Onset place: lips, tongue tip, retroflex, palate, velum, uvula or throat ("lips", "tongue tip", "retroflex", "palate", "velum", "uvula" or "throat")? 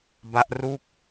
lips